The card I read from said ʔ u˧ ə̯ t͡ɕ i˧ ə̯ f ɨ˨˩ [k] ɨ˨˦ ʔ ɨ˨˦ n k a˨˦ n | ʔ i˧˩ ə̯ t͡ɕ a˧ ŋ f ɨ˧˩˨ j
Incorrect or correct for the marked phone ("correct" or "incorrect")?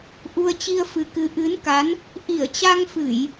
correct